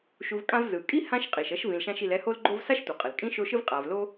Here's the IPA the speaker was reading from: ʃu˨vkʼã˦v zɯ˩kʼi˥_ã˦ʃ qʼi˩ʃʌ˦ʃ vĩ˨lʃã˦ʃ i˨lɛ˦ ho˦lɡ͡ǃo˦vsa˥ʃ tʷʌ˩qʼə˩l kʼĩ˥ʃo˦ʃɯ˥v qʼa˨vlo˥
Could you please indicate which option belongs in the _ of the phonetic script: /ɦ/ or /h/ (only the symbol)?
h